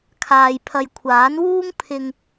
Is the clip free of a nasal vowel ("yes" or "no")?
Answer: yes